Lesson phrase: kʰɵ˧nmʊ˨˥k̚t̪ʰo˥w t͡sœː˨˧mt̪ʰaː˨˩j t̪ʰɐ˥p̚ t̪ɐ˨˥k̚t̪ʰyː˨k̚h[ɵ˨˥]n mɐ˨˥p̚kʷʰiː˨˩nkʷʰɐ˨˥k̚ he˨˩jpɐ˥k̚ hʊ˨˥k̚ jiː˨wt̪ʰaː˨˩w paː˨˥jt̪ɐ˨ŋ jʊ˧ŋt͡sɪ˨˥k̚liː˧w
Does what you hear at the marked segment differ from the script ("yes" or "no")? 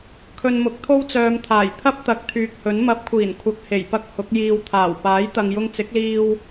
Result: no